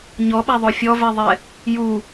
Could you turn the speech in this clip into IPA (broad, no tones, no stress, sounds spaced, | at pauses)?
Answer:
ɲ ɔ ɓ a ðˤ o fʲ ɔ v ɛ ðˤ ɛ | j u